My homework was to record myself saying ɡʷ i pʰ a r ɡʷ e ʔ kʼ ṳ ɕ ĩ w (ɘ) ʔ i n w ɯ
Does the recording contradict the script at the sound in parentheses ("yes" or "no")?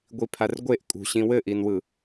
no